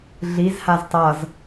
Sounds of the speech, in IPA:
ɮizhaz tˤʌz

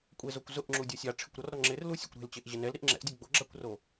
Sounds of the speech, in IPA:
kʷʼezokʷ zʊʔ ŋ͡ǁudʲusʲa ʈ͡ʂʰɪkʷɾɔrɾɔ ŋ͡ǁɪrlu sʲo̰kʷɾe̤lt͡ɕeʔ ʑɪnɛl ɾiʔŋ͡ǁɛ̰ʔdʲo ɡ͡boɡ͡ǁakʷro

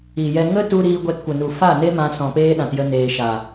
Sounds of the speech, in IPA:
i˨jɛ˧ ŋə˦tu˧ ɾiː˧ ɡʷɛ˧tkʷə˨nu˨ fa˦˨ne˦ mã˧sɔ̃˨peː˦ ɗã˨tjə˧ neː˨ ʃa˨

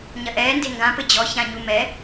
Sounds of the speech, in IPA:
ɲɐʔɛː ndeŋɡã pɘd͡ʑɔ çãɲumɛ

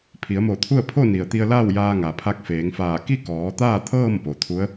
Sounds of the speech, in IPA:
pʰi˩˧ə̯mo˧˩t̪ʰu˥˨ə̯ pʰo˥˨ni˩ə̯ t̪i˧ə̯laː˥˨w jaː˧ŋa˩pʰa˧˥k̚feː˩˧ŋ faː˧˩ ki˥˨kɔː˩˧t̪aː˥˨t̪ʰɤː˥˨m po˩t̪ʰu˧˥ə̯

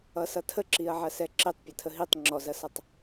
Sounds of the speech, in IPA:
ʌsʌtʰəǁiɐ̯ ʕɐsɛǁitˤ pʲɐtʰəɦitˤ ŋ͡ǁɔzɐsʌtˤ

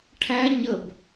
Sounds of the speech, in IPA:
ʈʰæ ɲəb

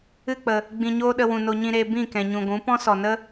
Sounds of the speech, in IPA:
ɨ˦˨k͡pə˨ | ɡ͡bĩ˧ɲoː˦ɗə˧ wũ˨no˧ɲĩ˧ɾeː˧ bĩ˦˨kɛ̃˨ɲũ˨ɡʷũ˨˦ pɔ̃˦sɔ˨nə˦

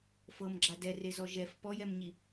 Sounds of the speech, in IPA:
fɤmɡ͡ǁa dɛrezɔ ʒɛf pɔjɛmɲi

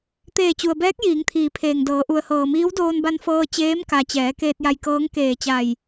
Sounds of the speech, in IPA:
t̪eː˧˩t͡ɕu˩ə̯ bɛː˧˥k̚ jiː˩˧ŋt̪ʰiː˩˧pʰeː˩ŋdɤː˩˧ ʔu˩ə̯hɤː˩miː˧˥w doː˧nba˧nfɤː˧ t͡ɕeː˧˥mka˩t͡ɕɛː˩˧ keː˧t̚ja˧jkɤː˧˥ŋ keː˧˩t͡ɕa˧˩j

